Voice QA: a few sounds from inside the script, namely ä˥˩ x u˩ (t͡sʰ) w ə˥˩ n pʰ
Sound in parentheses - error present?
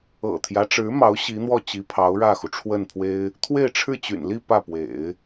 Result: yes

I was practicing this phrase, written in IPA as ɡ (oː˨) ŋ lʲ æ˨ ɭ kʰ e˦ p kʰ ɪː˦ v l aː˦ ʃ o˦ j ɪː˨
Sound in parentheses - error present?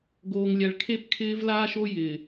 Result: no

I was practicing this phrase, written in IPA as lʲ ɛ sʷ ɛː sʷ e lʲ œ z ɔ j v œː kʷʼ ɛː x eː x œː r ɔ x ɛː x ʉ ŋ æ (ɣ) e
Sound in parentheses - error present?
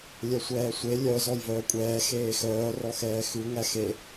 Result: yes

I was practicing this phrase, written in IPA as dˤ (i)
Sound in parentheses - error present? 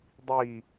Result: no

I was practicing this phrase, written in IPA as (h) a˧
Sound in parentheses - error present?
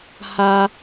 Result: no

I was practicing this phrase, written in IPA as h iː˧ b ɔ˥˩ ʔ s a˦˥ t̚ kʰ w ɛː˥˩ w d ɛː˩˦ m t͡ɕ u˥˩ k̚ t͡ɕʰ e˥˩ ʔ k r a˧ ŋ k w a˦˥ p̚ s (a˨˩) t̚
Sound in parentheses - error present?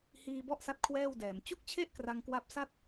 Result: yes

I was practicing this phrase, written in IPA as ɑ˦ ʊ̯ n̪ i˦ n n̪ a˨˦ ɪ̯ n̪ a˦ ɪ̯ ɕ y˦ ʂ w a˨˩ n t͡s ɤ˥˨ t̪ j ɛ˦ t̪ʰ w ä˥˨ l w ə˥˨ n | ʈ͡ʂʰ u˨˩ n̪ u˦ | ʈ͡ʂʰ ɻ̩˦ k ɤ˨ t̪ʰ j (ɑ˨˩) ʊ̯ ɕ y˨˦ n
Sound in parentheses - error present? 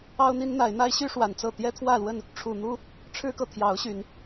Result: yes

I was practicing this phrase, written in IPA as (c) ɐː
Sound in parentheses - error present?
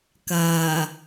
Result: yes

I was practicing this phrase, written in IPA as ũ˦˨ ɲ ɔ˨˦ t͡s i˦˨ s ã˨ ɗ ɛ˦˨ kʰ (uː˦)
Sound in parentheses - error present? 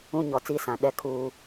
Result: no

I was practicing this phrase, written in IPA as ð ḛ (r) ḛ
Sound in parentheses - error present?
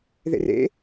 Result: no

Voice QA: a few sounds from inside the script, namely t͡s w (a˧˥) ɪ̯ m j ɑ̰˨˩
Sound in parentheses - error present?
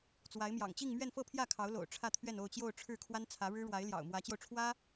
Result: no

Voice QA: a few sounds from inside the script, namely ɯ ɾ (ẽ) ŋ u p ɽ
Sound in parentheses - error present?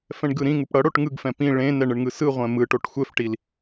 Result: yes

